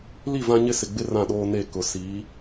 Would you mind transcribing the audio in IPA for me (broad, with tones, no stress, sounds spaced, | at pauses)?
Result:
l i˦˨ v ã˦ ɲ ɪ˦ s ɪ˨ ɡ͡b ɪ˦ r ã˦˨ ɗ oː˦ n e˦˨ k ʊ˨ s i˨˦